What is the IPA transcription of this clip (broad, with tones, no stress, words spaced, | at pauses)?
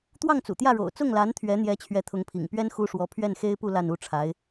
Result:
t̪wɑ˥˩ŋt͡sṵ˨˩t̪jä˥˩ɻo̰˨˩ʊ̯ t͡sʊ˥˩ŋla˧˥nt̪ʰɥɛ˧˥n̪jɛ˧˥ t͡ɕʰɥɛ˧˥t̪ʰʊ˧˥ŋpʰḭ˨˩ŋpɥɛ˥n xu˥ʂwɔ˧˥ pʰɥɛ˥˩nxe˥ɪ̯pu˥˧ la˥˧nu˥˩ʈ͡ʂʰa˧˥ɪ̯